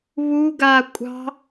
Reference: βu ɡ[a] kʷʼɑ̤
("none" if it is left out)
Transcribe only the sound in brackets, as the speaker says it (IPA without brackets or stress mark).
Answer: a